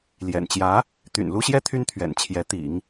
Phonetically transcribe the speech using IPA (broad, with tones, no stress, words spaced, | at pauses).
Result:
ljɛ̰˨˩nt͡ɕjä˧˥ | t̪y̰˨˩nlu˥ɕjɛ˥ t̪ʰy˥nt̪ʰɥɛ̰˨˩nt͡ɕʰjɛ˧˥ t̪ḭ˨˩˦ŋ